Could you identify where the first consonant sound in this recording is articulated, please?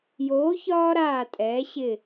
palatal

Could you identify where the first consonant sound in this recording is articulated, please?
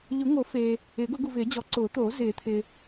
palatal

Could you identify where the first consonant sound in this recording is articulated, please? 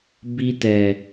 labial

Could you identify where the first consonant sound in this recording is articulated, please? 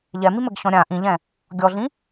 palatal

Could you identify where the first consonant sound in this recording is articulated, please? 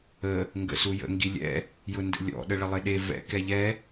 velar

